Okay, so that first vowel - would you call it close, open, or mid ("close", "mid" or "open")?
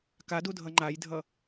open